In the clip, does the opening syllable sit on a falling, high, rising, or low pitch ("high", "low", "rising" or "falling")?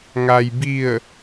low